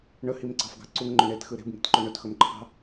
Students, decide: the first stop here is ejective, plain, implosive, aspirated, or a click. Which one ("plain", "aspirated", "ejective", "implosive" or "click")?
click